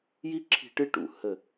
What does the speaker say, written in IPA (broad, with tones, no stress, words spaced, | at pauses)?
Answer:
ji˥ǁʰi̤˦˨ ʈɨ˥ʈṵ˨ hə˦˨